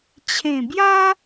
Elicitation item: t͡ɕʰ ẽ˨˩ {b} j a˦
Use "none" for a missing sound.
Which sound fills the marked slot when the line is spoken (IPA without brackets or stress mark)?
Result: b